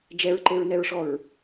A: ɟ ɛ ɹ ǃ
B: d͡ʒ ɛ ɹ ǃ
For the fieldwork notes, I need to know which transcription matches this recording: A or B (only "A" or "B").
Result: B